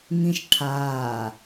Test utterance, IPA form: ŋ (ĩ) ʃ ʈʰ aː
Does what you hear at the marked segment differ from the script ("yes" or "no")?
no